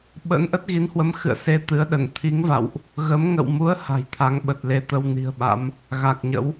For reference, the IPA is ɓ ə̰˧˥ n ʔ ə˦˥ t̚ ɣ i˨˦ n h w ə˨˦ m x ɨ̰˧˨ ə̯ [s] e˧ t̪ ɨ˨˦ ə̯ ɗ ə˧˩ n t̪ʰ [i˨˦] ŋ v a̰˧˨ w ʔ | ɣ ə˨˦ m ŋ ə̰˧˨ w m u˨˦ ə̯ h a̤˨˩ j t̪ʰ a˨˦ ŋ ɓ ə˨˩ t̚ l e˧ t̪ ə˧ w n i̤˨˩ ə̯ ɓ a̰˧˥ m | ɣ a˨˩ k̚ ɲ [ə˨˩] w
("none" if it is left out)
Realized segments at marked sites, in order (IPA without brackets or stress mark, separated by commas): s, i˨˦, ə̰˧˥